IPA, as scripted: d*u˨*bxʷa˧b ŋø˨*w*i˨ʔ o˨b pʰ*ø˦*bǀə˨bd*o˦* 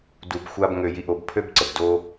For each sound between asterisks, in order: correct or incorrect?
correct, incorrect: j, correct, correct

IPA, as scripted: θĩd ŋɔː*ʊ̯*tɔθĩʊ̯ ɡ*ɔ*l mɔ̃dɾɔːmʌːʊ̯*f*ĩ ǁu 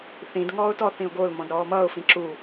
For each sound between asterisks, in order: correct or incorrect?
correct, incorrect: o, correct

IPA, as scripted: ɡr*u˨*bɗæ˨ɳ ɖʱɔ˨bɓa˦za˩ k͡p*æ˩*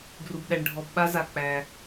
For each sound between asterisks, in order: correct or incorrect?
correct, correct

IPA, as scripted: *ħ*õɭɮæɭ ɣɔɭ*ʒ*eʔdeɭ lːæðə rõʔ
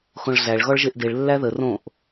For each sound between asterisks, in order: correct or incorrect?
incorrect: x, correct

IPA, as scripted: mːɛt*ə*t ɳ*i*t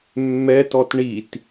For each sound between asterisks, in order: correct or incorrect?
incorrect: ɔ, correct

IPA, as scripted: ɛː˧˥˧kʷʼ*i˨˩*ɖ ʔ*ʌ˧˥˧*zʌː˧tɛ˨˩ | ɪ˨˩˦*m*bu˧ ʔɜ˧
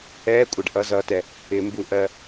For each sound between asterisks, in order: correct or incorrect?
incorrect: ɪ˨˩, correct, correct

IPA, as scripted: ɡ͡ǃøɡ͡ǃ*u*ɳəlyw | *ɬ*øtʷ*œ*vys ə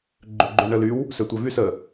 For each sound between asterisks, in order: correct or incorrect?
incorrect: ø, incorrect: s, correct

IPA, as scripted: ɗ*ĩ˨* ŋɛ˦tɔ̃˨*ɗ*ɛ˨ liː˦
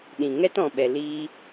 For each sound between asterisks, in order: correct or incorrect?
correct, incorrect: ɓ

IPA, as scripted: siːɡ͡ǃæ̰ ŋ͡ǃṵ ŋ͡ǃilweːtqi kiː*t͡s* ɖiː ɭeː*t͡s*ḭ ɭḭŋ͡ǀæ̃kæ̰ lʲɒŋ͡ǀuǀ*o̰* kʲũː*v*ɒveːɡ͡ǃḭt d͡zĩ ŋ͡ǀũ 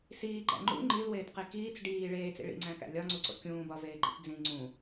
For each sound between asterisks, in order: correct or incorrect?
correct, correct, correct, incorrect: b

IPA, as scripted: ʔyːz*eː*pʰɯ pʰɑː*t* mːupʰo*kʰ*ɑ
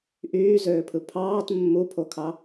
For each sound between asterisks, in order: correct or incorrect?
incorrect: øː, correct, correct

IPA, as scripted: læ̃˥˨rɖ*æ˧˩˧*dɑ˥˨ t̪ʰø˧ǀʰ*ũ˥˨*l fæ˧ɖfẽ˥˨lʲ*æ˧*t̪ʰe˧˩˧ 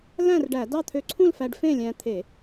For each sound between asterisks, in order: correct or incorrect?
correct, correct, incorrect: æ̃˧

